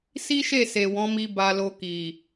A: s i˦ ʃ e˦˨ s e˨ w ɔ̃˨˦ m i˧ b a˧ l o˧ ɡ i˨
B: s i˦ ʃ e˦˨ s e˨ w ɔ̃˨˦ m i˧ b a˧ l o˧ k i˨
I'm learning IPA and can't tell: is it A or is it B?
B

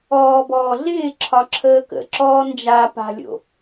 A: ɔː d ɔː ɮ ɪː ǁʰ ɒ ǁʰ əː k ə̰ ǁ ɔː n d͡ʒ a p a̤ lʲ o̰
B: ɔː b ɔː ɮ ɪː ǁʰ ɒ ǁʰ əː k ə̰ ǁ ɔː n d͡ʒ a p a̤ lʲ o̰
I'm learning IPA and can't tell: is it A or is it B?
B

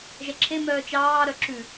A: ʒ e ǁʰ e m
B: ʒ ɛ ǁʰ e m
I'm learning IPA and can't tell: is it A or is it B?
B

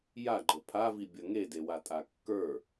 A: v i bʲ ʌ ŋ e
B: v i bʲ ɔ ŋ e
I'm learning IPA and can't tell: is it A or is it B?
A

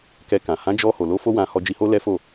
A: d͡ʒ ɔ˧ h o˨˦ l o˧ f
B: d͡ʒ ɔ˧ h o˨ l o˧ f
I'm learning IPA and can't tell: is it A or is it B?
B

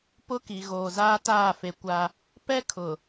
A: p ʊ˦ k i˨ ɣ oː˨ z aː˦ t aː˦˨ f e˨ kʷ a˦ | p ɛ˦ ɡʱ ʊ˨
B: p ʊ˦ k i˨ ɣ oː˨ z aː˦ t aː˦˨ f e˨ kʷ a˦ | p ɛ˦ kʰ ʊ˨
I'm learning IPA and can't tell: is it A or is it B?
B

